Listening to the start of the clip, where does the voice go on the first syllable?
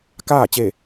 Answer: falling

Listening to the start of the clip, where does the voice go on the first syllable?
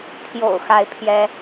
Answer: low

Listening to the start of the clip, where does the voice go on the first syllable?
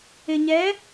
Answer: low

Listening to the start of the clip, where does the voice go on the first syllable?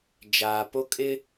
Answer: low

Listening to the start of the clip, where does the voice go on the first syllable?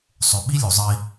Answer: low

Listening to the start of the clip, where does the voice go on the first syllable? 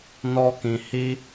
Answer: high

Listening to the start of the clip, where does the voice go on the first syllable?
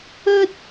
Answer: high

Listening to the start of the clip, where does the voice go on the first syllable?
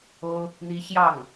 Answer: high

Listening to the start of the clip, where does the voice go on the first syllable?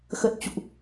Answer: low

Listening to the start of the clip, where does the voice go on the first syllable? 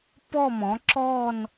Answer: falling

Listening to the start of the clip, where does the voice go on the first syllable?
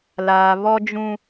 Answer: low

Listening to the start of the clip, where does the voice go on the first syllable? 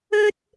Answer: high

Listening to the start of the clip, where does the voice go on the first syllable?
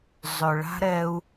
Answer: low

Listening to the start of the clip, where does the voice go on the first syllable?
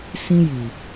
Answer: high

